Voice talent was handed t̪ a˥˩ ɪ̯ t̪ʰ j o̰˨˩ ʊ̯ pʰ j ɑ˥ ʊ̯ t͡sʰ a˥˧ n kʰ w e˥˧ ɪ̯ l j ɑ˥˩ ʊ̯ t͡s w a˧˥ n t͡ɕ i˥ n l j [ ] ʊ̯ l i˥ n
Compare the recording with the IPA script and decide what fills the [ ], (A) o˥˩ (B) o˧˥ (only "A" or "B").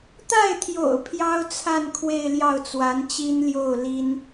A